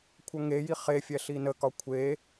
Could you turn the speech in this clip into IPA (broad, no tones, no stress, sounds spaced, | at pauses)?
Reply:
kʷʰ ʌ ŋ e j i χ e fʲ ɛ ɬ i n ə k ɒ kʷʰ e